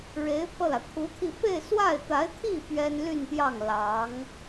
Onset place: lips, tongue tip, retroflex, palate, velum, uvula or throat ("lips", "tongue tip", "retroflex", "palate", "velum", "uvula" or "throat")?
retroflex